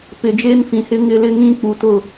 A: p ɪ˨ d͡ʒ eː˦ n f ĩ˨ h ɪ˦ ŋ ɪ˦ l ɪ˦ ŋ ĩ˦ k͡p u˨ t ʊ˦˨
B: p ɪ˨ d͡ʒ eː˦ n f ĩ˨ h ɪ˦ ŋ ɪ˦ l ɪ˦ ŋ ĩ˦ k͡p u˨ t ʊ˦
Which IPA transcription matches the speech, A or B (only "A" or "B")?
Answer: A